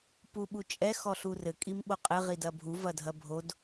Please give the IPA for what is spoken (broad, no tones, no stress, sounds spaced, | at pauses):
p u ɓ u t͡ʃʼ ɛ x ɔ ɬ u r ɘ kʼ i m ɓ o qʼ ɘ ʁ i d ɐ bʱ u v ɐ dʱ ɐ bʱ o d